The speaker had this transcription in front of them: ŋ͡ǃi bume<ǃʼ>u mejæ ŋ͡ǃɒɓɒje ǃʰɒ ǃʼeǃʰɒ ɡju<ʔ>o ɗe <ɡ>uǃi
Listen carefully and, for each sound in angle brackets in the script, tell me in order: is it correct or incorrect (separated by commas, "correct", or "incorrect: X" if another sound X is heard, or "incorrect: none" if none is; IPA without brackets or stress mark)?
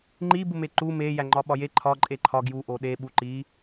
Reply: incorrect: ǃ, correct, incorrect: ɓ